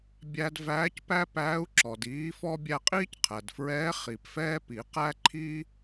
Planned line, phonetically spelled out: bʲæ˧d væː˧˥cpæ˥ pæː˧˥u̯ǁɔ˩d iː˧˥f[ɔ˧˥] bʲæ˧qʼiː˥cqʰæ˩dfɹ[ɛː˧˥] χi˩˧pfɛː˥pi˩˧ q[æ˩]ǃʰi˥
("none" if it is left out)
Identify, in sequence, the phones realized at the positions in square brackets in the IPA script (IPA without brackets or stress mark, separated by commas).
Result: ɔ˥, ɛː˧˥, æ˥